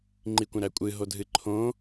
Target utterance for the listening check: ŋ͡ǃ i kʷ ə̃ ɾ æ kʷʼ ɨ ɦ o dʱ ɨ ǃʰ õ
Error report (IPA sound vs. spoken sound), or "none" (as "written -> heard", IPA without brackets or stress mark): none